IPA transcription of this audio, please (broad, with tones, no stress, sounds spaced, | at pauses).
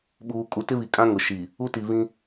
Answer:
ɓ uː˨ kʼ u˨ t ɪ˦ β i˨ kʼ ã˦ ŋ ʊ˨ ʃ i˨ | u˦ t i˨ β ĩ˦